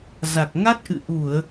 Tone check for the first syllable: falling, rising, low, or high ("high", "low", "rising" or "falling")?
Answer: low